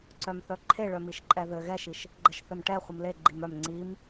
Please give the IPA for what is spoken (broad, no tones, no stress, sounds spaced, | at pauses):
ǀ œ m θ œ ǃʰ e ɭ œ m i ʃ ǃʼ ɛ ð ɘ ɣ ɛ ʃ i ʃ | ɡ͡ǃ ə ʃ θ ɘ m ʈ ɛ χʷ ɘ m l e ɡ͡ǃ i m œ m ŋ͡ǀ i m